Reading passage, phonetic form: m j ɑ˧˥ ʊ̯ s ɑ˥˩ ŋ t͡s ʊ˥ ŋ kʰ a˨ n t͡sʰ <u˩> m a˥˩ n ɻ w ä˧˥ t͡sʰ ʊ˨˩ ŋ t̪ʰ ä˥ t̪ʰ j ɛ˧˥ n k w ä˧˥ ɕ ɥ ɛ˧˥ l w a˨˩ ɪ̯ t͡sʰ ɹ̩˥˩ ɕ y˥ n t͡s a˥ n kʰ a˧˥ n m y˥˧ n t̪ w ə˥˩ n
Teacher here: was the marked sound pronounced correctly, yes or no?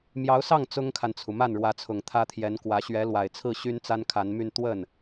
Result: yes